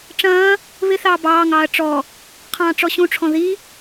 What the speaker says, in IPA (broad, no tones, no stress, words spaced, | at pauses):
ʈ͡ʂɐ̃ː | βɪθɑː bɑːŋɑːɐ̯ ʈ͡ʂɔ | qʰɑ̃ːʈ͡ʂɔɕũʈ͡ʂʰɔ̃ ði